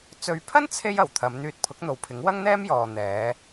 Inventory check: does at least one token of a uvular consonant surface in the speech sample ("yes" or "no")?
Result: no